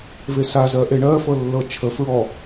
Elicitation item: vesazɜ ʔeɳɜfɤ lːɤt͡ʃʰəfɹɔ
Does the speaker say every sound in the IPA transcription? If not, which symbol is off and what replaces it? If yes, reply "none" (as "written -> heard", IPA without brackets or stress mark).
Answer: none